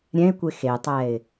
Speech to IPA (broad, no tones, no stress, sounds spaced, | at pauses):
ɾʲ ɛ̃ ɪ̯ kʷ e x e tˤ ɛ ɪ̯